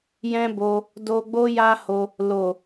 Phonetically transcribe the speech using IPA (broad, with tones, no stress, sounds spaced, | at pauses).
j ɛ̃˦ b o˧ | d o˧ ɡ͡b o˦ j a˦ h o˧ | l o˨